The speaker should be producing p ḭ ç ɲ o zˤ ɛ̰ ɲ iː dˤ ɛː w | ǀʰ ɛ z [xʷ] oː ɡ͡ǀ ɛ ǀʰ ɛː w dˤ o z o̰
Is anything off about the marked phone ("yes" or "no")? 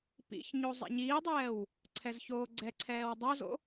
yes